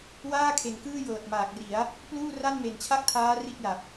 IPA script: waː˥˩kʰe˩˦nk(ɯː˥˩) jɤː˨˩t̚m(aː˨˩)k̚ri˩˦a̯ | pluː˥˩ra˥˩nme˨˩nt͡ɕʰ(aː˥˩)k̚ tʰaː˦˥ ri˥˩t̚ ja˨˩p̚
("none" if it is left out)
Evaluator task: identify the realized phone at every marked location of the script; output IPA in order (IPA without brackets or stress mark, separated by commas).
ɯː˥˩, aː˨˩, a˥˩